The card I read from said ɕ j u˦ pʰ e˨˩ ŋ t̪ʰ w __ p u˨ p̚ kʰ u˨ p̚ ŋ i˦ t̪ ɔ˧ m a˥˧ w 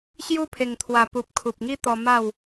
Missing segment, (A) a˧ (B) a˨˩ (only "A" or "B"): B